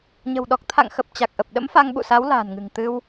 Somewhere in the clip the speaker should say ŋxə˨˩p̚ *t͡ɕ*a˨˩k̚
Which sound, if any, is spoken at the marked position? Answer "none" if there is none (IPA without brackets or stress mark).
t͡ɕ